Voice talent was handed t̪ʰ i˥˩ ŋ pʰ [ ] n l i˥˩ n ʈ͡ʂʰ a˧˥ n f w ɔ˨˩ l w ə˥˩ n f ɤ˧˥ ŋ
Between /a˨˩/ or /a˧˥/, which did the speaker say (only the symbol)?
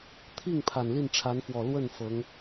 a˨˩